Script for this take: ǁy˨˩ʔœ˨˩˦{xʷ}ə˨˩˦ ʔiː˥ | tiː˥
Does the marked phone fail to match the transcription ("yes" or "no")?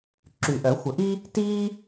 no